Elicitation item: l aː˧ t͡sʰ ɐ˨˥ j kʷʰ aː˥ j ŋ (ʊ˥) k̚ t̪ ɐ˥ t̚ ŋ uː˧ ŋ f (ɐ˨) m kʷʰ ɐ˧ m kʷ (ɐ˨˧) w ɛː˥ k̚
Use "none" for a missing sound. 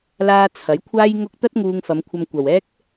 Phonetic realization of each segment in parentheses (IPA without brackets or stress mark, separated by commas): ʊ˥, ɐ˨˧, ɐ˨